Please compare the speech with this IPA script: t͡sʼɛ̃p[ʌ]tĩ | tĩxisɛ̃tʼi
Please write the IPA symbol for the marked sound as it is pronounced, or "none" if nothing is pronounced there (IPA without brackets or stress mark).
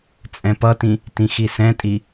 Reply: ʌ